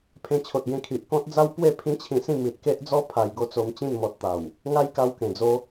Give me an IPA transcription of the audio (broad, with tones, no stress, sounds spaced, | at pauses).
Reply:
pʰ ẽ˧ t͡ɕʰ o˨ t̚ ɡ ẽ˧ kʰ i˨ ʔ k ɔ̃˦ t̚ d͡z a˦ w p w e˥˧ pʰ ĩ˦ t͡ɕʰ ĩ˧ s ĩ˥˧ m i˨ t̚ k e˦ ʔ d͡z ɔ˦ pʰ a˧ j ɡ o˦ t͡s o˧ m t͡ɕ ĩ˥˧ n m ɔ˨ t̚ t̪ a˨˩ w | ŋ a˦ j k a˧ w k ẽ˨˩ d͡z o˦